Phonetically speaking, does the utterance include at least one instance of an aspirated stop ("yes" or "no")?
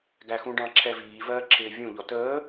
yes